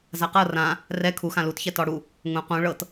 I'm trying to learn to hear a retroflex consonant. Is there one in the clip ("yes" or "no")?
yes